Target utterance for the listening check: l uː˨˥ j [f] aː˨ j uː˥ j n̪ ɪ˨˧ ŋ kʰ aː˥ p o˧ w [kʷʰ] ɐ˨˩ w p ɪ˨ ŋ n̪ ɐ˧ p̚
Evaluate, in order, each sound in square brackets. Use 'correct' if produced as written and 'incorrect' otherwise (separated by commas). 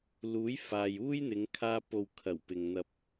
correct, incorrect